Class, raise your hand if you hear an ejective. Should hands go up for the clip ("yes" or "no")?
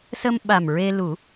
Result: no